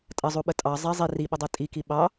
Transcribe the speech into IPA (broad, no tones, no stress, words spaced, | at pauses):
tʼɐzˤuɓə tʼɑ zˤɛ zˤi riɓədˤɛ tʼiki ɓɑ